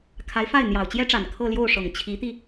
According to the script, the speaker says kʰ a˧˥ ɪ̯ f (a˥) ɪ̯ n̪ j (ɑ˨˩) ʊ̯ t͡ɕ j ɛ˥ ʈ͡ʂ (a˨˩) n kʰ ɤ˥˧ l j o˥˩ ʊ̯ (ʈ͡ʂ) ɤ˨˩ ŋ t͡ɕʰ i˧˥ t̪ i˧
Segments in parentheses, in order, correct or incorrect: incorrect: a˥˩, correct, correct, incorrect: ʂ

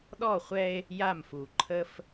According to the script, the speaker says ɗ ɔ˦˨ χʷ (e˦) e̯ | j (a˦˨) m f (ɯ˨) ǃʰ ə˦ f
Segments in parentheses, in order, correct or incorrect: incorrect: ɛ˦, correct, incorrect: u˨

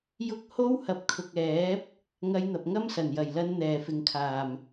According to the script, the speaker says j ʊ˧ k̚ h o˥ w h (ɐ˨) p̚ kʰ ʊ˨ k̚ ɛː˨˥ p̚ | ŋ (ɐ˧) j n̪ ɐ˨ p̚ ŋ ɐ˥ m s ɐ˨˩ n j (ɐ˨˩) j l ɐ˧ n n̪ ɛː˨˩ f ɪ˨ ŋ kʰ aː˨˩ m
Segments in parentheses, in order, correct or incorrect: correct, correct, correct

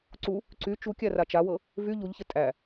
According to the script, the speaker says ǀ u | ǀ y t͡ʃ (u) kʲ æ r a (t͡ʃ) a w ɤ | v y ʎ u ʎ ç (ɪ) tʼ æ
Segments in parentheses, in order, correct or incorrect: correct, correct, correct

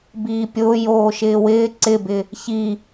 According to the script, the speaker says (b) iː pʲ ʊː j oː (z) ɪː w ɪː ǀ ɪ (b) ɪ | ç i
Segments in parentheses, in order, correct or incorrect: correct, incorrect: ʃ, correct

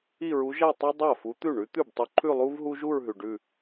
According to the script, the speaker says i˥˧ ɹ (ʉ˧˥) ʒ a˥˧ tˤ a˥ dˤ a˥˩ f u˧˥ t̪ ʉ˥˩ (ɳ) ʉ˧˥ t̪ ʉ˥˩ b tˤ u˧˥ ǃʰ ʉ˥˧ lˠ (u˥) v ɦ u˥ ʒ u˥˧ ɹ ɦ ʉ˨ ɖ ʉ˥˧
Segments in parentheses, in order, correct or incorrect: incorrect: u˧˥, correct, correct

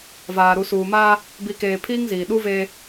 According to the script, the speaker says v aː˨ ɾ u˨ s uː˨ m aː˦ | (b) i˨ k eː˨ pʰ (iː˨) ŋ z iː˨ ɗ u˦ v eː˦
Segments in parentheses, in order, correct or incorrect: correct, incorrect: iː˦

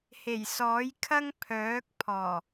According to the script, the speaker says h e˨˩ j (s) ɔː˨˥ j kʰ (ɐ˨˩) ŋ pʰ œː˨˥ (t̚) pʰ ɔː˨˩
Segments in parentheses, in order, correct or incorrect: correct, incorrect: ɐ˥, incorrect: k̚

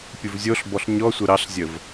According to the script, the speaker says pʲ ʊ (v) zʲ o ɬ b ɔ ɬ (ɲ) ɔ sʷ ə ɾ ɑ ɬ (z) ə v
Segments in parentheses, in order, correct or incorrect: correct, correct, incorrect: zʲ

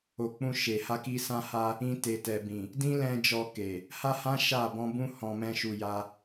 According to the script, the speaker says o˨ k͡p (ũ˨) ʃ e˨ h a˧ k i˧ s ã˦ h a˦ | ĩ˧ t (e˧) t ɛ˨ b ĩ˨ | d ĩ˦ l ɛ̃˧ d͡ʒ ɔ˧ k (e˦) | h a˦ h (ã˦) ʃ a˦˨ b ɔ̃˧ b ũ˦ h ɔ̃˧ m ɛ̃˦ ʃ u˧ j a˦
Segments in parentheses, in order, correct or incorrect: incorrect: ũ˧, incorrect: e˨, incorrect: e˨, correct

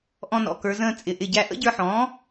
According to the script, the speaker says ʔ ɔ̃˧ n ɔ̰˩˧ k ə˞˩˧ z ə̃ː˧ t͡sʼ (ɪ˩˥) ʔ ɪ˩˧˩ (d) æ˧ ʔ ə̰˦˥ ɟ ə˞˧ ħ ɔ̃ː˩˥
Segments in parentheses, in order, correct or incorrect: incorrect: ɪ˩˧, incorrect: ɟ

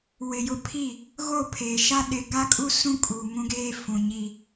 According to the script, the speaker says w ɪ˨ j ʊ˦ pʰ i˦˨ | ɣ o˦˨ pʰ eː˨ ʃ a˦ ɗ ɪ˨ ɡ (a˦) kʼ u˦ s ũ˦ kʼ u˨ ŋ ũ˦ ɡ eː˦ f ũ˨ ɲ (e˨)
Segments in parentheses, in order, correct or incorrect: correct, incorrect: i˨

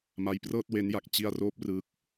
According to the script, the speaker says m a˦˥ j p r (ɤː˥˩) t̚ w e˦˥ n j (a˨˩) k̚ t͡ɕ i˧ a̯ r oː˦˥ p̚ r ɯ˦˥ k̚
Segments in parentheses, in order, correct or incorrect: correct, correct

